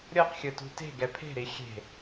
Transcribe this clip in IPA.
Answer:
ɾʲ ɤ q xʲ ɯ t ṳ t e̤ ɡ ɛ pʰ e̤ ɾ i xʲ e̤

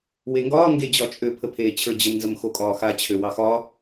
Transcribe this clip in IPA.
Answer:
w e ŋ ɡ ɒː ŋ ɡ e d͡ʑ ɒ t͡ʃʼ ø pʰ ə pʰ eː t͡ɕʰ ə˞ d͡ʑ ə m n z ə m x o kʼ ɒː x a t͡ɕʰ ø w ɑ x ɒ

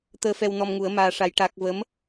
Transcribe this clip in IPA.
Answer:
t̪ əː˧ f ɛ˧ w n ɔ˧ m ŋ u˨˩˦ ə̯ m aː˧ ʂ a˧˥ j ʈ a˦˥ k̚ v ə˧˥ m

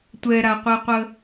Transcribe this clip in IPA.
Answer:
tʷ ɛ ɾ a qʷ e qʷ ə

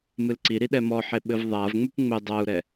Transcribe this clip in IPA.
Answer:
m ɨ l ǀ i ɾ i ɗ ɛ m ɔ ħ e ɓ ɘ v ðˤ a v ŋ͡m u p ŋ͡m ɘ dˤ a u̯ ɾ ɛ

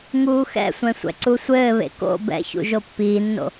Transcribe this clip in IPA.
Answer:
ŋ uː x ɛ̰ sʷ ɛ̃ sʷ ɛ̰ ǀ u sʷ ɘː β ḛ k o̰ b ɛ̰ ç ṵ ʒ o pː iː nː o̰

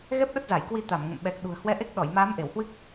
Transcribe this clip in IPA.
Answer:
ɣ ɛ˦˥ p̚ ɗ ə˦˥ t̚ z a˧˩ j k w i˧ t̪ a˧˩ m ŋ ə̰˧˨ m ɓ ɛ˨˩ k̚ ɗ ṳ˨˩ ə̯ h w ɛ˧ ʔ e˦˥ k̚ ɗ ɔ˧˩ j m aː˨˦ m ʔ e˧˩ w h w ɨ˦˥ k̚

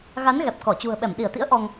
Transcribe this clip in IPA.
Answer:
ɣ a˨˦ n ɣ ɛ˨˩ p̚ k ɔ˧˩ t͡ɕ ṳ˨˩ ə̯ ɓ ɛ˧˩ m ɗ i˧˩ ə̯ t̪ ḭ˧˥ ə̯ ʔ ɔ˧ ŋ

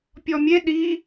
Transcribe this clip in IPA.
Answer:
pʲ ɔ mʲ e ɗ i

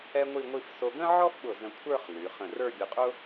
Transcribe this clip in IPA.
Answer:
ɛ˥ ŋʷ i˥˧ ŋʷ i˥˧ f s o˧ ɡ ə̃˥ ʕ ɔ˥ f ɓ ʊ˧˩ z ə̃˧ kʷʰ ə˞˥˧ χ l y˩˧ χ ə̃˧˩ r ə˞˥˧ bʲ ʊ˧ qʼ ʊ˥

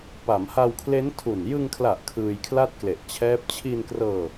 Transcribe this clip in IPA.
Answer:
p a˩˦ m h a˧ w kʰ l e˦˥ n tʰ u˨˩ n j ɯ˧ ŋ kʰ l a˨˩ ʔ kʰ ɯː˧ j kʰ l a˥˩ t̚ k l e˨˩ ʔ t͡ɕʰ ɛː˦˥ p̚ t͡ɕʰ i˧ n k r ɤː˧

